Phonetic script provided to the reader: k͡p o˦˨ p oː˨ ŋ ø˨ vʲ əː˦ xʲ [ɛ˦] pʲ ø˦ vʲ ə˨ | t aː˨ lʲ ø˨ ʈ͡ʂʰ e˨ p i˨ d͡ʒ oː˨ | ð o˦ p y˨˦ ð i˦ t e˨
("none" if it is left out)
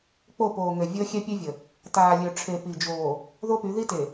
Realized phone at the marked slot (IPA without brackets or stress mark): ɛ˦